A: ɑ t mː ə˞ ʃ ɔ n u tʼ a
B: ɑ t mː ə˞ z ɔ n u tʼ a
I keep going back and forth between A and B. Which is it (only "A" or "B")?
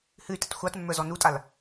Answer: B